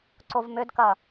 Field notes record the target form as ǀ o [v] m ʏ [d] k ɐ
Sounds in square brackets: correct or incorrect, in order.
correct, correct

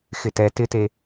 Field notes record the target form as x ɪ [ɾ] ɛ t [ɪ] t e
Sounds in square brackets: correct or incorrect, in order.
incorrect: t, correct

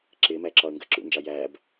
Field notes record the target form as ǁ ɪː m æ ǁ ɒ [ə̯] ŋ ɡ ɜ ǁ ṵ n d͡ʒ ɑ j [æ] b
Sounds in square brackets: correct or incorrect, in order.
correct, correct

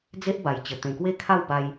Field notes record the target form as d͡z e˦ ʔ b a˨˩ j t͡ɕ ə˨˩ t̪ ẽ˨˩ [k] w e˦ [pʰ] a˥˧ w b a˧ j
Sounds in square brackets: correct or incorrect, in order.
correct, incorrect: kʰ

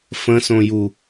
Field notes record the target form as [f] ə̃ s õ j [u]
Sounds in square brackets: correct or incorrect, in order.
correct, correct

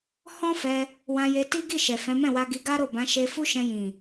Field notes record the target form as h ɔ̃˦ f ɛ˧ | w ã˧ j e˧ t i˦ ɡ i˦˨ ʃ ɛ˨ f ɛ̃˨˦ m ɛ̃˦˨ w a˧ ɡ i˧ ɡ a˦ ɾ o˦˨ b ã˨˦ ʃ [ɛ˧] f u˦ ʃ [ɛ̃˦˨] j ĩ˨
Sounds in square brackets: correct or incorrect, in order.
incorrect: e˧, incorrect: ɛ̃˧

